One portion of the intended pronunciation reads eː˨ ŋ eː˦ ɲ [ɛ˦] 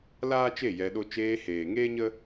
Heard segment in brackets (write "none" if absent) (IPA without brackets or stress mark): ə˦